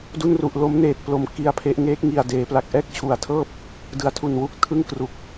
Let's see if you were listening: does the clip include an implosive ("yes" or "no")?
no